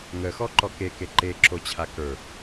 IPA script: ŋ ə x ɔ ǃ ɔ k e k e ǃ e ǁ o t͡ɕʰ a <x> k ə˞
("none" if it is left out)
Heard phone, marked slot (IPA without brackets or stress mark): none